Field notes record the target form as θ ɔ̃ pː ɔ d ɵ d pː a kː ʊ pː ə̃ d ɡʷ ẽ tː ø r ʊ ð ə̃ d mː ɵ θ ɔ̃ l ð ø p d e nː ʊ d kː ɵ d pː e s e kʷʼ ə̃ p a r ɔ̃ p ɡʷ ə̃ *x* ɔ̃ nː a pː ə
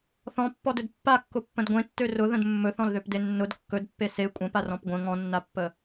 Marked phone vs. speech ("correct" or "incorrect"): incorrect